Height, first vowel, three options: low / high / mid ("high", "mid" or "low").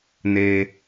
mid